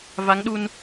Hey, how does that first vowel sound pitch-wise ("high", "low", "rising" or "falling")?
rising